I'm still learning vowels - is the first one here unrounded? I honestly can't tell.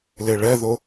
yes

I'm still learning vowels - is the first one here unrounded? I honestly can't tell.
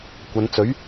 yes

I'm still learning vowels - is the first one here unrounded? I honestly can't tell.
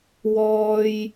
no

